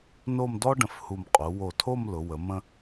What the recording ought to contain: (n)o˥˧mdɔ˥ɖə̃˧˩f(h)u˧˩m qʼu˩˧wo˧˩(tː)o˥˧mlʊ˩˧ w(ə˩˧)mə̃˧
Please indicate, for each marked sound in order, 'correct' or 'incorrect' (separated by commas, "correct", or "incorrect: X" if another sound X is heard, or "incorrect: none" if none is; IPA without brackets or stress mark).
correct, correct, incorrect: tʰ, correct